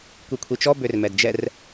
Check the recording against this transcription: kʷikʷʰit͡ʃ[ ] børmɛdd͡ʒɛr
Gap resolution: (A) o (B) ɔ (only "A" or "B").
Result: B